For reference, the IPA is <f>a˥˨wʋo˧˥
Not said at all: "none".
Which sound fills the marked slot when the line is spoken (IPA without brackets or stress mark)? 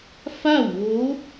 f